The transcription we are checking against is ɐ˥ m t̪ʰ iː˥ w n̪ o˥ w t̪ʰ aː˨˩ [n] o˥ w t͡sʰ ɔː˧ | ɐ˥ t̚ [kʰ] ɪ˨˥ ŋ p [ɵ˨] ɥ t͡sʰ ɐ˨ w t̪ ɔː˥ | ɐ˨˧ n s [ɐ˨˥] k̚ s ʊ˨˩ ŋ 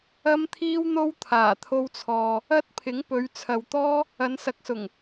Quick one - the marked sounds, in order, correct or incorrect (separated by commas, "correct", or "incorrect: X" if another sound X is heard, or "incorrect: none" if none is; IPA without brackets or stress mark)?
incorrect: t̪ʰ, incorrect: pʰ, incorrect: ɵ˨˧, correct